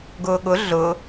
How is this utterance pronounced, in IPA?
ɡ ʊː ɠ ʊ ɮ ʊ

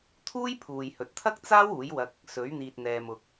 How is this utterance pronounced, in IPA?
t̪ʰ uː˥ j pʰ uː˨ j h ɵ˨ t̚ t̪ʰ ɐ˥ k̚ t͡s aː˥ w uː˨˥ j w ɐ˧ k̚ | s ɵ˨˥ ɥ n̪ iː˨ t̚ n̪ ɛː˨ m ʊ˧ k̚

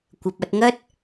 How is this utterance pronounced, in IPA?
kʷ ɐ˨ p̚ ɐ˧ t̚ ŋ ɐ˥ t̚

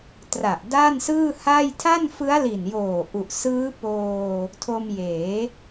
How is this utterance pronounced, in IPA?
t r a˨˩ ʔ d a˥˩ n s ɯː˥˩ h a˥˩ j tʰ a˥˩ n f ɯ˦˥ a̯ l i˨˩ n j oː˨˩ ʔ u˨˩ ʔ s ɯː˦˥ p oː˧ | tʰ o˧ m j eː˩˦

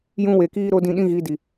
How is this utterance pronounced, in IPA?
j ũ˦ w e˨ k iː˦ ɾ o˦ d ĩ˧ ɗ ĩ˦ ɣ i˨˦ d i˨

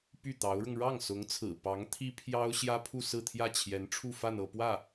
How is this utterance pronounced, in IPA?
p y˥˩ t̪ ɑ˧˥ ʊ̯ ɻ ʊ˧ ŋ ɻ ɑ˥˩ ŋ s ʊ˧˥ ŋ t͡sʰ ɹ̩˨˩ p ɑ˧˥ ŋ t̪ʰ i˥ pʰ j ɑ˥ ʊ̯ ɕ j ä˥ pʰ u˥˧ s ɹ̩˥˧ t̪ʰ j ä˥˩ t͡ɕʰ j ɛ˧˥ n ʈ͡ʂʰ u˥˧ f a˥˧ n ɤ˥˧ p w ä˥˩

